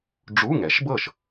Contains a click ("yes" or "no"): no